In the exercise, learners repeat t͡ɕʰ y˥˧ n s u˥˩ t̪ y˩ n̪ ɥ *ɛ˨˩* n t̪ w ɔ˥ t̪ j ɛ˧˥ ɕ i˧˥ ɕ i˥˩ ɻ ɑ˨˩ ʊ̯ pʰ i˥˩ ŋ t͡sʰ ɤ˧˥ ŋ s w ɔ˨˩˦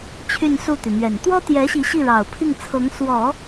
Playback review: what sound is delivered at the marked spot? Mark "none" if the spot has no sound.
ɛ˨˩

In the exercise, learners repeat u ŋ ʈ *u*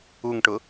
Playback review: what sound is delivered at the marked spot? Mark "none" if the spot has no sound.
ʊ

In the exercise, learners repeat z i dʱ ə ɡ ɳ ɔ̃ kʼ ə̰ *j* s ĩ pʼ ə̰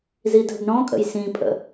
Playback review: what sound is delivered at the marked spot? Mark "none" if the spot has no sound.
j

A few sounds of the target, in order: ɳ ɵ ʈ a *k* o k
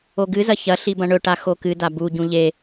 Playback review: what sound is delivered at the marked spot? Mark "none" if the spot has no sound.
x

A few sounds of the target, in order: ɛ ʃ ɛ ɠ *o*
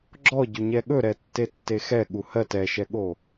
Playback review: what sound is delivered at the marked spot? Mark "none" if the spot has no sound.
o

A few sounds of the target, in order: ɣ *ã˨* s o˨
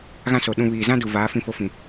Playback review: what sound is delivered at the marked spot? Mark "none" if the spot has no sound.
ã˦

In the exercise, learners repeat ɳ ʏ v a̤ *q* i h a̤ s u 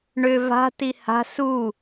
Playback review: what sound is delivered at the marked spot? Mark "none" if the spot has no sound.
t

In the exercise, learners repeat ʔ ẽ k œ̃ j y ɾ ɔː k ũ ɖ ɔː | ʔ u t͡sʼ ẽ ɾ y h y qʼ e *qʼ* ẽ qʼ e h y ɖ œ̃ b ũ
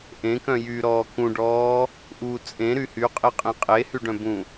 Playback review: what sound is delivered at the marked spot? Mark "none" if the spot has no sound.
qʼ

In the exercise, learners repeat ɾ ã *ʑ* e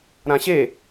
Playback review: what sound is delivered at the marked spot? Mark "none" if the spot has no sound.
ɕ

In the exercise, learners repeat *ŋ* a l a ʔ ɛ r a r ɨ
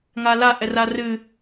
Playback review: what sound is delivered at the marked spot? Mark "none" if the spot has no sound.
ŋ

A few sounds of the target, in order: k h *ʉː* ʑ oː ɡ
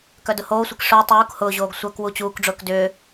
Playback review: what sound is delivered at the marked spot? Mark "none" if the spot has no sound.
ʊː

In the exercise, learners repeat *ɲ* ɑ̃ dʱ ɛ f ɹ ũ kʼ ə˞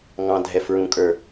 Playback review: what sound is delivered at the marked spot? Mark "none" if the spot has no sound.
ŋ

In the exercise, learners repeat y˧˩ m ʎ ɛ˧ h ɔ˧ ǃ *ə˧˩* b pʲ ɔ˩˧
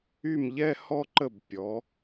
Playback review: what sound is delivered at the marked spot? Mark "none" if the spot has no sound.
ə˧˩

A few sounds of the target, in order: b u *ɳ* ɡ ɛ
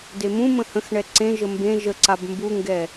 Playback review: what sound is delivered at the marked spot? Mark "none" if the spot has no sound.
ŋ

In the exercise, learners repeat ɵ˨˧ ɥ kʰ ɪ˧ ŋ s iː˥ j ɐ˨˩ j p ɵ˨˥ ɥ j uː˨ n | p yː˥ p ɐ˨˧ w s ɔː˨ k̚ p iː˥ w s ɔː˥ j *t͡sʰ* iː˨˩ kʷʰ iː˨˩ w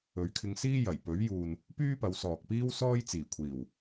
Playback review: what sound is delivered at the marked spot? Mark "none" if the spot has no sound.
t͡s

